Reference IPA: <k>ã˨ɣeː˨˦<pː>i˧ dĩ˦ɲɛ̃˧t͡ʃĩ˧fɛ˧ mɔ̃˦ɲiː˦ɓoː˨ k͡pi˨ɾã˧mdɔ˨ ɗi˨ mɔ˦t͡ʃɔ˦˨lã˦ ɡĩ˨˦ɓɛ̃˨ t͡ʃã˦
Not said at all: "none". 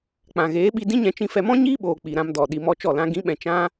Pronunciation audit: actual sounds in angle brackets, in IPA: k͡p, ɓ

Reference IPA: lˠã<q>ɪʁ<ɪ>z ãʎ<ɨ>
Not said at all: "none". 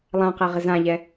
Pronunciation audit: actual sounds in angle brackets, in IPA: q, ɪ, ɛ

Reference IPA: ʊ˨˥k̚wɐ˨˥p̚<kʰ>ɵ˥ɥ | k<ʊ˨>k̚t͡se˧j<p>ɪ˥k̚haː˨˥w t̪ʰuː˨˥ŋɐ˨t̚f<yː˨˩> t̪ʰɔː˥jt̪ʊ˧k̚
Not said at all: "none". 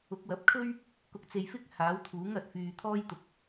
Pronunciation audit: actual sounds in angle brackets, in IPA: kʰ, ʊ˧, f, yː˨

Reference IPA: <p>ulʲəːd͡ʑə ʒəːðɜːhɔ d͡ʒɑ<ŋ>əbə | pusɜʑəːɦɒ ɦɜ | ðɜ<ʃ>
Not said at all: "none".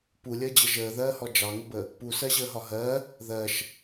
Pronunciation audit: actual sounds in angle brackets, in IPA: p, ŋ, ʃ

